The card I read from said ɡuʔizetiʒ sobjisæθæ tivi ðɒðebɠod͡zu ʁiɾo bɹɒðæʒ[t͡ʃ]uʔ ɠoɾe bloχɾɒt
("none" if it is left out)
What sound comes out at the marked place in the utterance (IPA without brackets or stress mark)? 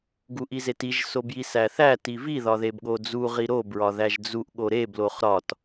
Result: d͡z